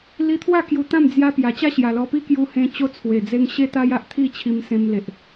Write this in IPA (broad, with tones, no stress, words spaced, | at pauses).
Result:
li˧t̪ʰwa˥˧ kju˧t̪ã˥˧m d͡zja˧ pja˨˩t͡ɕa˥˧ ɕja˨˩lɔ˧ pi˥˧kju˧hẽ˧ t͡ɕo˦t͡sʰwe˨˩d͡ze˦ŋ ɕe˦t̪a˦j a˦ʔt̪ʰi˥˧ t͡ɕʰi˧msẽ˧mle˨ʔ